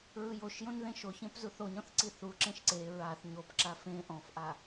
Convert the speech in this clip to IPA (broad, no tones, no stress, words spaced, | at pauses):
ɹɯjoʃjõn ðẽʃoçẽp zuθoɲɔ̃θ ǀiθuǁẽʃ ǀe ɹaθ ɲopǁa fẽ ʔɔ̃fʔa